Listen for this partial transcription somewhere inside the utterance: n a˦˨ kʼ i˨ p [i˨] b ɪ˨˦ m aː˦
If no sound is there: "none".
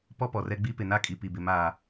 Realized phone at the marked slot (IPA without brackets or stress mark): i˨